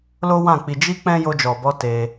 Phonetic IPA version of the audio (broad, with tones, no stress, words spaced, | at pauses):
lo˦wã˦˨k͡pi˧ d͡ʒi˦k͡pɛ̃˦ jo˧d͡ʒɔ˨bɔ˧ te˧